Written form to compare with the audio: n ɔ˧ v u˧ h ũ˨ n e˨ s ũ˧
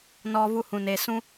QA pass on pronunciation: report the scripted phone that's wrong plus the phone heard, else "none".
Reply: none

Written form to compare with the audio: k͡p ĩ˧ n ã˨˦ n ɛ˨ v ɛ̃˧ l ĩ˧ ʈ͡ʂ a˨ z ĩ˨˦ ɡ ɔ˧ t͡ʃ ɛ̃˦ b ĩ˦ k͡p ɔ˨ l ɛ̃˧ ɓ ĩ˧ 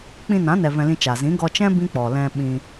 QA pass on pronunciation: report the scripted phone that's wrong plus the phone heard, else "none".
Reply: ʈ͡ʂ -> t͡ʃ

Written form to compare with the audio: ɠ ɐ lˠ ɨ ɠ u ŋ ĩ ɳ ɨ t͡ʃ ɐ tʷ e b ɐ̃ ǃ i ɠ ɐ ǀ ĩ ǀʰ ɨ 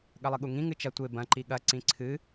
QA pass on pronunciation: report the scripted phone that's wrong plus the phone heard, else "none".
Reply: ɳ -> ŋ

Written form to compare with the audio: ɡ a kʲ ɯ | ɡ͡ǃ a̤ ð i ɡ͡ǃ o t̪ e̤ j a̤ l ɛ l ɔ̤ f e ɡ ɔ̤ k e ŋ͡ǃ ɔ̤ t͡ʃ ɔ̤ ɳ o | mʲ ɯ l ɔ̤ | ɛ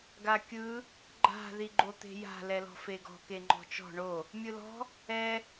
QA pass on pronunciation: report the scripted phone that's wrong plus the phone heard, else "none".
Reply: none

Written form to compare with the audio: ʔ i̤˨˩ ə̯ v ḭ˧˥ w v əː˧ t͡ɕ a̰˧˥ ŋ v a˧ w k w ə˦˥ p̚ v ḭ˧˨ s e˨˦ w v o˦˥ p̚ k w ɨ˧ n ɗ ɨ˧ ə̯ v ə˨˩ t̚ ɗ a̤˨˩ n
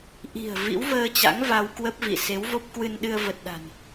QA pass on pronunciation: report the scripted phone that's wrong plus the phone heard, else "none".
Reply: none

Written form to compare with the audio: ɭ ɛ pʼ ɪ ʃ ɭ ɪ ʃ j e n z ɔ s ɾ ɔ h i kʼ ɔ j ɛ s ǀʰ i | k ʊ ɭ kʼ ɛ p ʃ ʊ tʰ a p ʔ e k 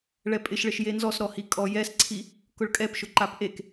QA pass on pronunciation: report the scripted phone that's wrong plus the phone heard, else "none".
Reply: tʰ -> ǃ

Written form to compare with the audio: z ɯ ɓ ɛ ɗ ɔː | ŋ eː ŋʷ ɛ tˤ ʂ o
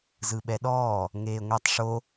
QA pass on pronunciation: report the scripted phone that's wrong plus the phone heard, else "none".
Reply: none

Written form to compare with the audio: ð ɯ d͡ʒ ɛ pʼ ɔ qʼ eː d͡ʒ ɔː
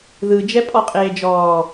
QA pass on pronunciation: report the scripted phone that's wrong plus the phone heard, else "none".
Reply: none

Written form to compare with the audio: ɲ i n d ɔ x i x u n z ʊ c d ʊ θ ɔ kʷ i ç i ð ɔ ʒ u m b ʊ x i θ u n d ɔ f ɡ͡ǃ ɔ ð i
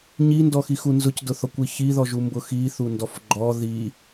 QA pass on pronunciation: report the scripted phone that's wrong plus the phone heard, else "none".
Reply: none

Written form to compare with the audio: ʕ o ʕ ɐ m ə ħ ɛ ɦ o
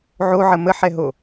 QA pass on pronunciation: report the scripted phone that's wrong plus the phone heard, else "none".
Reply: ɐ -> ə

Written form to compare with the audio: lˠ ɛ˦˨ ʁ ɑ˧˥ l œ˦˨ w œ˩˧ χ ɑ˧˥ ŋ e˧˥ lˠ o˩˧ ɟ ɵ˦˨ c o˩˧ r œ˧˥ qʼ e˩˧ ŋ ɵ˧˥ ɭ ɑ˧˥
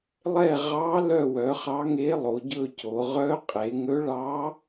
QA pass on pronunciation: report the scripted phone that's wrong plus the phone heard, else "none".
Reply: r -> ʁ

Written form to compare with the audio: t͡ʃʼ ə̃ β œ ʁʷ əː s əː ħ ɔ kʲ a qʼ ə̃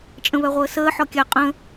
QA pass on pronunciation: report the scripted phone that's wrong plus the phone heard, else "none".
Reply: none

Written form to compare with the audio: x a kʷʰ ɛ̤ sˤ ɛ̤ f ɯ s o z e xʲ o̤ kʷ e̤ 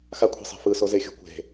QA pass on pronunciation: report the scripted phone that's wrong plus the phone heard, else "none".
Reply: none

